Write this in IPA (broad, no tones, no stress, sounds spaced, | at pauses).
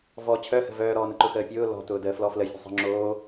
v ɔ t͡ɕʰ œ h ə̤ v œː ɾ ɔː n ə ǃ ʊ x əː pʲ ʊː l ɔ̤ t ʊː d əː f l ɔ f l ə fʲ ə̤ sˤ ə̤ ŋ͡ǁ oː